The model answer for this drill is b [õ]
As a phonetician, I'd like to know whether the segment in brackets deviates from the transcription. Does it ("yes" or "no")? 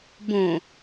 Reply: no